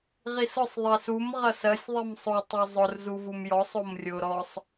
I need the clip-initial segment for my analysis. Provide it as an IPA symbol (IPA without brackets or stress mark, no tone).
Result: ʁ